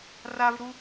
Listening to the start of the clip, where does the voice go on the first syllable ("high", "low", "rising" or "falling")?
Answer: high